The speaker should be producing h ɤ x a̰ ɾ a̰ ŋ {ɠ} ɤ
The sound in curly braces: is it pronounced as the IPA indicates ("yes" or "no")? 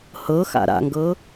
no